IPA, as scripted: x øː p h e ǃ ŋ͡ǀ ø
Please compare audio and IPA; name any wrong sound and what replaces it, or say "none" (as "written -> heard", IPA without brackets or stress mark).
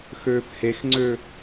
ǃ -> x